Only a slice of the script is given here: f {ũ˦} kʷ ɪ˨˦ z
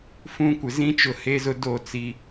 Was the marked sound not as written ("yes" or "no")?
no